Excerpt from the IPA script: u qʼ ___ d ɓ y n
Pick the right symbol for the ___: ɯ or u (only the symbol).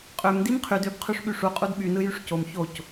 u